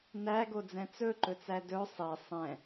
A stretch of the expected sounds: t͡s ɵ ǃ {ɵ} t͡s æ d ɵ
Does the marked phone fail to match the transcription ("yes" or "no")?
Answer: no